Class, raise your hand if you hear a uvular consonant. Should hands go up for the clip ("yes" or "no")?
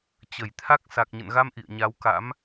no